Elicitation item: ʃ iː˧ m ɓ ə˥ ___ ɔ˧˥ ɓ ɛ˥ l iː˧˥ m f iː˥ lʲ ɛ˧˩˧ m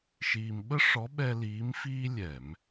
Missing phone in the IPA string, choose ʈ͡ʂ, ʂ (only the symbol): ʂ